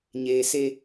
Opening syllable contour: low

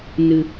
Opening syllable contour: low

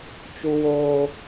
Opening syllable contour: high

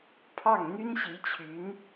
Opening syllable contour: falling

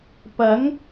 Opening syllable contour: rising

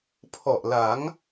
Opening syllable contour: low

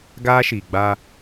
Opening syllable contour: high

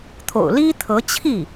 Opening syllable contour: low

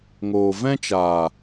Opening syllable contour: low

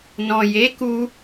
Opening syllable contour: low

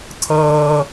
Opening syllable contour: high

